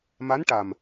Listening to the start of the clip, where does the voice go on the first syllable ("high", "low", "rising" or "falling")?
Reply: rising